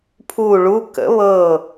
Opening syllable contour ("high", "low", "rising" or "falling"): falling